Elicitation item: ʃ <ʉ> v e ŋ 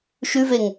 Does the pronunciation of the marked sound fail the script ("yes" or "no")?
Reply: no